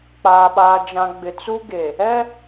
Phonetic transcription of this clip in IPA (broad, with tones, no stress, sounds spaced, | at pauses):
k͡p aː˨ ɓ aː˨ d͡ʒ ã˨ ɡ͡b ɪ˨ t͡s u˦ ɡ e˨ | ɛ˦